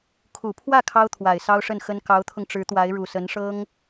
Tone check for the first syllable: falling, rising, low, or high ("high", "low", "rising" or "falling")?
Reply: low